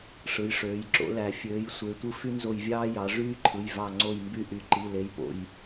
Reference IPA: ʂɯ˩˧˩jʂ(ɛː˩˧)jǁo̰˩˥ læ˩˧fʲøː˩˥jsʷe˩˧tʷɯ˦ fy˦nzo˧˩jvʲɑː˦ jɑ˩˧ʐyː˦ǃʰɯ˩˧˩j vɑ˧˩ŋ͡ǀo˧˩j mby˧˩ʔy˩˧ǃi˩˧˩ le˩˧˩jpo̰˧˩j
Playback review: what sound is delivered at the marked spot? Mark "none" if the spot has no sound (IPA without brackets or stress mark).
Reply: øː˩˧